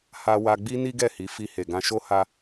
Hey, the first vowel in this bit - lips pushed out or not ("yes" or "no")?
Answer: no